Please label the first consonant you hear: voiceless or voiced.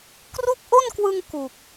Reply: voiceless